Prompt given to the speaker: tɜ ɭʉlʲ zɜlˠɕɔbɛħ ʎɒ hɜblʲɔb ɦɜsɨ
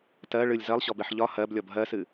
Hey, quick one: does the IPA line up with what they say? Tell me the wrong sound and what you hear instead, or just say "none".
ʉ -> ɨ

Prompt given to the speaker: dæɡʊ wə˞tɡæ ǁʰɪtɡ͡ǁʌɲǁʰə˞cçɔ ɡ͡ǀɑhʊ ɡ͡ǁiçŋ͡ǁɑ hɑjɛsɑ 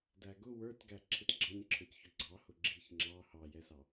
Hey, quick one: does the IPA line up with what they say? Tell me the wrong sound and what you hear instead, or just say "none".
none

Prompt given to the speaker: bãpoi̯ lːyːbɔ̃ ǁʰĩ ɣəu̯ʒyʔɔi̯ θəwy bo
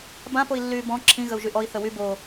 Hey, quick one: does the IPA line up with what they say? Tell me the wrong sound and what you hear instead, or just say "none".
none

